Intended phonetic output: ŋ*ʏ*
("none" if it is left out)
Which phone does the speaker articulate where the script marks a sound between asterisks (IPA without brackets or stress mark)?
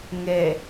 ɛ